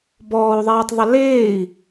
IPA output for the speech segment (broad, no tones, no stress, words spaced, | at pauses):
bɔːu̯ðˤɛːtˤðˤə leːi̯